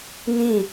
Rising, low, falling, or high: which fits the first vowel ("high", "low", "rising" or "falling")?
falling